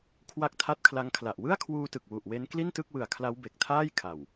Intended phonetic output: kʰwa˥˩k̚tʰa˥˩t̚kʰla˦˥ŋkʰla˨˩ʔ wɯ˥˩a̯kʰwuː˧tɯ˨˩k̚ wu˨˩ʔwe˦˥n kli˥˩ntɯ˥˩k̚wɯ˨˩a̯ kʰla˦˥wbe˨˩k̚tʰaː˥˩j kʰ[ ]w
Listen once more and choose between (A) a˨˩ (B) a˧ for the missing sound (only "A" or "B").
A